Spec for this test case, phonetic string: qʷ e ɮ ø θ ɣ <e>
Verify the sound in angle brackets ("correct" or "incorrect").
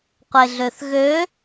incorrect